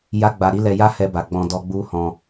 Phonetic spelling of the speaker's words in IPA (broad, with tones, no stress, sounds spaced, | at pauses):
j a˦ ɡ͡b a˧ ɾ i˦ l ɛ˧ j a˦ h ɛ˧ b a˨ ɡ͡b ɔ̃˧ d ɔ˧ ɡ͡b u˦ h ɔ̃˧